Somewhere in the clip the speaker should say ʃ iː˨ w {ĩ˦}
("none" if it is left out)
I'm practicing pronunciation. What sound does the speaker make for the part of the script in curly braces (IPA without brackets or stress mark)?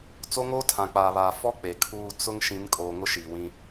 ĩ˦